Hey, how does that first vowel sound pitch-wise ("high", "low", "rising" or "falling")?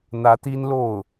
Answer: rising